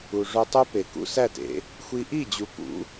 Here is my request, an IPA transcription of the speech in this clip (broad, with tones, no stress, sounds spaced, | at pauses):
u˨ ʐ o˧ tˤ o˦ p e˨ k ṵ˧ s æ˦˨ t ḛ˨˦ | xʷ i˧ ʔ i˦˨ d͡ʑ u˨ k ṵ˨˦